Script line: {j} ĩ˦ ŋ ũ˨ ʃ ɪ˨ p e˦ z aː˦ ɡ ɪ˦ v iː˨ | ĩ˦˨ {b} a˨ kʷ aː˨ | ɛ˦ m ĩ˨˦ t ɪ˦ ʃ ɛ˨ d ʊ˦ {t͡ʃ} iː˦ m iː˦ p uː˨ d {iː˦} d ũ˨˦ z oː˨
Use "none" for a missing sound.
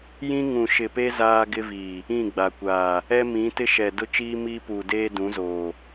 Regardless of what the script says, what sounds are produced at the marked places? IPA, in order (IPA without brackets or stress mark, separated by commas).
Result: j, ɡ͡b, t͡ʃ, eː˦